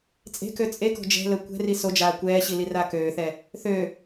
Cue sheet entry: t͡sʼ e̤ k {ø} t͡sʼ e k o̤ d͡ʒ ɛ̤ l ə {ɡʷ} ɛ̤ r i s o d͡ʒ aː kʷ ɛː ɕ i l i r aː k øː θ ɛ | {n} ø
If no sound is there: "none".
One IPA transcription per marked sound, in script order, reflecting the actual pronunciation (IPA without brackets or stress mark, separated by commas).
ø, kʷ, θ